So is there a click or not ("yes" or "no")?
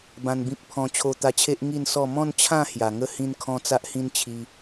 no